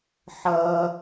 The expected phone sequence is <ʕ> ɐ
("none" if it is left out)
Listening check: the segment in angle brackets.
ħ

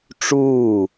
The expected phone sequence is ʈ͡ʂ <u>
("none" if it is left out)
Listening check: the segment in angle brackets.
uː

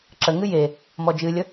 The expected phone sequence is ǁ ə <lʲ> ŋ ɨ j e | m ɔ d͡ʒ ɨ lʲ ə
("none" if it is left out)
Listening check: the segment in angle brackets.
none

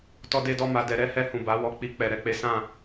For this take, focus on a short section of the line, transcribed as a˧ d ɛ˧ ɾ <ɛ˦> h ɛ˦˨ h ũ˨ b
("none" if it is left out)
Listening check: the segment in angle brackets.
ɛ˦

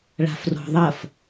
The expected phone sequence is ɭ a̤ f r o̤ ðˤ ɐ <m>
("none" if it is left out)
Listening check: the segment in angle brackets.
f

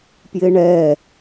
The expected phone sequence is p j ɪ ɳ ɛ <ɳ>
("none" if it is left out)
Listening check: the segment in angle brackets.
none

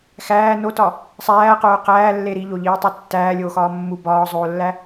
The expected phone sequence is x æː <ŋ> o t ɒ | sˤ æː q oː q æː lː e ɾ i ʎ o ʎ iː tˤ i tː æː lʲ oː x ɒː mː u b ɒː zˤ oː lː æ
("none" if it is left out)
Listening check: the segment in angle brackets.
n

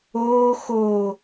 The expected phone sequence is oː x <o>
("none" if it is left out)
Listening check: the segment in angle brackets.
oː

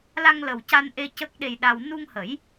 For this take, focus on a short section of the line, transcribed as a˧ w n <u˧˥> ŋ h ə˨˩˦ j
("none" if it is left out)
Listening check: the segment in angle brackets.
u˧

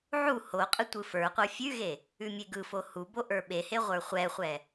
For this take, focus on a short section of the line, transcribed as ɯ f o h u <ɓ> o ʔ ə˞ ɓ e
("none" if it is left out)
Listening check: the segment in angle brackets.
b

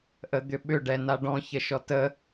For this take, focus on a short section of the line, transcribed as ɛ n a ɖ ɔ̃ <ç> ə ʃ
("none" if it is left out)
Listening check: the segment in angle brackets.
ç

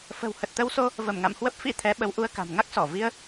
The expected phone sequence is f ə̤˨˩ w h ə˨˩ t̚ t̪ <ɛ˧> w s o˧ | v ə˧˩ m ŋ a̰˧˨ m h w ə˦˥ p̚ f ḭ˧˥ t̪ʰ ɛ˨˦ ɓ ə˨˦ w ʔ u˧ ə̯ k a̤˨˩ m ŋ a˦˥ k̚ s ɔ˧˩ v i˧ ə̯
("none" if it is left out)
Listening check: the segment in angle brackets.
ə˧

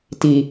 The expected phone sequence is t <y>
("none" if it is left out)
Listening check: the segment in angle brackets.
i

